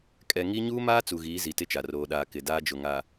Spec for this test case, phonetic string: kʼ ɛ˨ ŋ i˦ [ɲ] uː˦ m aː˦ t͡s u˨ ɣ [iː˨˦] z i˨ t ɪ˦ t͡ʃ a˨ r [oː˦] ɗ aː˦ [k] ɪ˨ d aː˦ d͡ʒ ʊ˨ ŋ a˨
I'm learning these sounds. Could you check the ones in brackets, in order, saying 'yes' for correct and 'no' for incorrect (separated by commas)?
yes, yes, yes, yes